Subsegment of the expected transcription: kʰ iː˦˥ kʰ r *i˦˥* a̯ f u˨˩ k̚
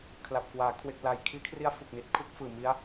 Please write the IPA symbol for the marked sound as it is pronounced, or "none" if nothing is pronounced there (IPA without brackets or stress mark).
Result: i˦˥